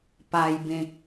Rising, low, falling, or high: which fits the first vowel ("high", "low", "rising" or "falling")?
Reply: low